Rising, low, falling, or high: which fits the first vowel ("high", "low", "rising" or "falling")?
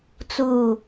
falling